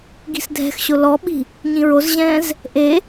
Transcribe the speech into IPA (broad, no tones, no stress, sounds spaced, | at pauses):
ɡ i̤ s dʱ ɛ̤ x ɕ ʊ l ɔ ɓ i̤ | ɲ ĩ ɹ o z ʑ ɛ̃ː z | ʔ e